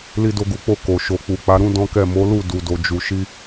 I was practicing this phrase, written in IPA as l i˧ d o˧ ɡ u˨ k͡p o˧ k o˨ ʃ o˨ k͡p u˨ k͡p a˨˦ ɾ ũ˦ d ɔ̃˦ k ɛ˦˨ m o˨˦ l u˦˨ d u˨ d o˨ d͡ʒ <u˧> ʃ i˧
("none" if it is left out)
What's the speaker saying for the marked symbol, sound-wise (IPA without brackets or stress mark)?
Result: u˨